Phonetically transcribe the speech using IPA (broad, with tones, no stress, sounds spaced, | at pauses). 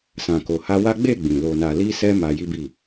s ã˨ k o˨ h a˧ w a˦ ɡ͡b e˦˨ ɡ͡b ĩ˨ l o˨ n a˨ l i˧ s ɛ˧ m a˧ j i˦ b i˦˨